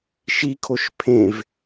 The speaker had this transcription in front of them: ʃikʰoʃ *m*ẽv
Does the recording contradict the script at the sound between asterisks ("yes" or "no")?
yes